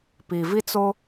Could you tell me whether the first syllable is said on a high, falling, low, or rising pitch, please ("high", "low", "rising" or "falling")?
low